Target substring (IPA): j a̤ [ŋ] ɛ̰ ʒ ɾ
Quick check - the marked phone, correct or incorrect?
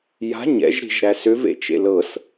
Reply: incorrect